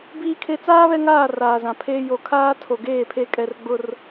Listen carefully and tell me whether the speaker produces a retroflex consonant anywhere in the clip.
no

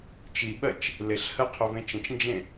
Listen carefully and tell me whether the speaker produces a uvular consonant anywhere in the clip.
yes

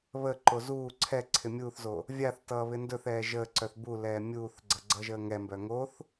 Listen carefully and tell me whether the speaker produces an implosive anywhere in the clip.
no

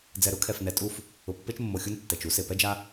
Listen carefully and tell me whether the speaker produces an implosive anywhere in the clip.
no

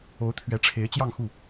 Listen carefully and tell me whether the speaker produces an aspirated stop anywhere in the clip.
yes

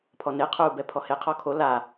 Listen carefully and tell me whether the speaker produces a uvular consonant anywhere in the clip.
yes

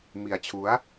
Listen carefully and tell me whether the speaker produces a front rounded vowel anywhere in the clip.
no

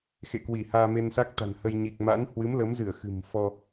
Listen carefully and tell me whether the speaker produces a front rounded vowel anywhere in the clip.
no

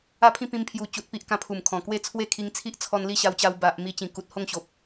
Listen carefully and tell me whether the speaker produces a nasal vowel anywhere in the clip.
yes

